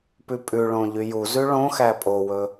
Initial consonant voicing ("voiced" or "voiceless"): voiceless